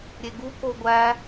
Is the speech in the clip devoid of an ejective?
yes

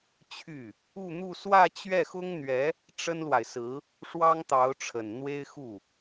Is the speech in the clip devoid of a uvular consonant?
yes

